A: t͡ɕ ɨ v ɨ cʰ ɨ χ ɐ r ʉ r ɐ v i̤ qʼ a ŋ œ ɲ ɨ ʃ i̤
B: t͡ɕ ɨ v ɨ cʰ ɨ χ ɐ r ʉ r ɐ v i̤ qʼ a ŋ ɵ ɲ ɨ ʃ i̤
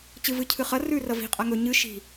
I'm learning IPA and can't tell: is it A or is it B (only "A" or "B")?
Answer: B